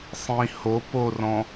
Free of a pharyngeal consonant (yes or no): yes